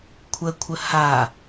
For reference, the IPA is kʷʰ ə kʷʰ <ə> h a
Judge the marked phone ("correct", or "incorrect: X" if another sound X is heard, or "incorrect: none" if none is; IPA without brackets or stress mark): correct